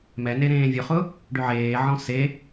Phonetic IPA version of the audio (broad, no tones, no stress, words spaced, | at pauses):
mɛne ɾẽːvʲʊχʊ | ɖʏʕeːʕɔ̃ se